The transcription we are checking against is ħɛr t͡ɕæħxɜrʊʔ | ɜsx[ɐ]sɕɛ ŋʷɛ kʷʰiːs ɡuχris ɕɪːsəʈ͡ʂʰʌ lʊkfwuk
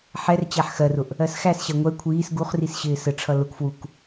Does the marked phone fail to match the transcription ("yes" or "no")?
yes